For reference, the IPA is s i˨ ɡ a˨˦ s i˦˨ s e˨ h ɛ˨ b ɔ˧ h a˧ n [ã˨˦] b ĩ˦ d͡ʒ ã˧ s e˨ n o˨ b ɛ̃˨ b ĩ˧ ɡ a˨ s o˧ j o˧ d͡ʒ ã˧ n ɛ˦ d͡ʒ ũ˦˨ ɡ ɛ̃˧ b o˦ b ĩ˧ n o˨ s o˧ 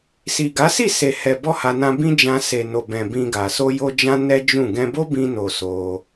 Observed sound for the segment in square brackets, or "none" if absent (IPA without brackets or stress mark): ã˧